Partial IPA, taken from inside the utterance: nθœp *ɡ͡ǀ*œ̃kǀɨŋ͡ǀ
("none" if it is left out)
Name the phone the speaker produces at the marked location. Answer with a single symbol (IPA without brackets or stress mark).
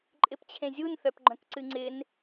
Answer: ɡ͡ǃ